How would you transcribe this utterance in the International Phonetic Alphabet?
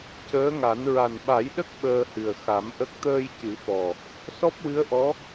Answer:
c əː˧˥ ŋ a˨˩˦ n ɹ a˨˩ n ɓ a˨˩˦ j ɗ ə˦˥ k̚ ɓ əː˧ h ɨ˨˩ ə̯ x a˨˩˦ m ʔ ə˦˥ k̚ t̪ əː˧ j c ɨ˨˩˦ f ɔ˨˩ | s ɔ˦˥ p̚ w ɨ˧˥ ə̯ ʔ ɔ˧˥

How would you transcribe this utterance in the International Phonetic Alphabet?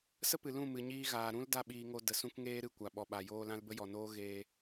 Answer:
s ə˦ p ɨ˨ l ũ˦˨ m ɨ˨ ɲ iː˧ ɣ aː˨ ɾ ũ˦ l d a˦ ɓ iː˧ ŋ o˧ d ə˨ s ũ˧ k ŋ eː˧ ɾ ɨ˨ kʷ a˨ ɓ ɔ˨ ɓ a˨ j oː˧ l ã˧ l b ə˦ j ɔ˨ n oː˦ ɣ eː˧

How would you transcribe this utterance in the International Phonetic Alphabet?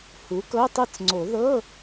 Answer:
h u˩˥ k ɤ˧˥˧ tˤ ɤ˥˩ t͡s ŋ͡ǀ o˨˩˦ ð ɤ˧˥˧

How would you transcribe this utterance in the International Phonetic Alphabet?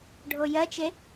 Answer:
ɖʱ o j ɜ t͡ʃ e

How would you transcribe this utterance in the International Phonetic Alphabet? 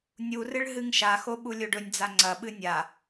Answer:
nʲ u r ɨ ɭ ɦ ɨ ŋ ʃ a x o ɓ u lʲ o ɖ ɵ nʲ d͡z a ŋ͡ǀ ɐ ɓ ɨ nʲ a

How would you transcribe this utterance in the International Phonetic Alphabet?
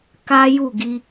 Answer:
k a˦ j u˦˨ ɡ i˧

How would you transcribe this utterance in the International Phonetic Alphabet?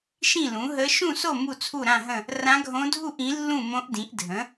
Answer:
ʃ ĩ˥˨ l ũ˩˥ ɦ ə˧˥ ʃ ũ˥˨ s o˥˨ m u˥˨ t͡sʰ u˥˨ ɾ ã˥˨ ɦ ə̃˥˨ | r ã˧˥ ɡʱ õ˧˥ dʱ u˥˨ ʔ ĩ˩˥ lː ũ˥˨ m õ˧˥ ʔ d ĩ˩˥ ʔ dʱ ə̃˩˥

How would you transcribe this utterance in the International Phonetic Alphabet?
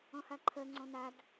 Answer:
ɔ̃ h a ǃʰ ɜ ŋ͡ǀ ɔ̃ n a d

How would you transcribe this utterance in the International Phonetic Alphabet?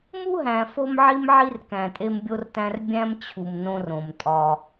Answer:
m u˦ ɦ æ̃˨ f o˦ m ʕ i˦ m ʕ i˦ r k æ̃˨ tʼ e˦ m bʲ o˦ r t æ̃˦ r bʲ æ̃˦ m t͡ɕʰ u˨ m n õ˦ r õ˨ m tʼ ɒ˦

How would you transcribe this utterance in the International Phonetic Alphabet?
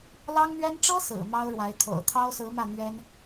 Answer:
l ɑ˥ ŋ n̪ ɥ ɛ˥ n ʈ͡ʂ ɤ˥ s ɹ̩˨˩ m ɑ˥ ʊ̯ ɻ w a˧˥ ɪ̯ t̪ʰ o̰˨˩ ʊ̯ t̪ʰ ɑ˥ ʊ̯ s ɹ̩˧˥ m ä˥˩ n̪ ɥ ɛ˥ n

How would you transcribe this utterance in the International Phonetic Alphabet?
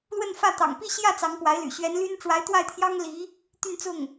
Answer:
l w ə˥˧ n f ä˥˩ t̪ ɑ̰˨˩ ŋ p i˥˧ ɕ j ä˥˩ t͡s ɑ˧˥ ŋ p w a˧˥ ɪ̯ l y̰˨˩ ɕ ɥ ɛ˧˥ n l y˥ n ʈ͡ʂ w a˧˥ ɪ̯ t̪ w a˥˩ ɪ̯ t̪ʰ j ɑ˥ ŋ l i˧˥ | t̪ y˥˧ n t͡s ʊ˥˩ ŋ

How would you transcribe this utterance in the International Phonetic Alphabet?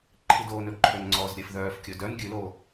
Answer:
ǃʰ i d oː n ɵ ǃʰ ø n ŋ͡ǀ ɔː z ɾʲ ɛ f ð œː f kʲ ɵ d œ n ɡʲ ʉ l oː

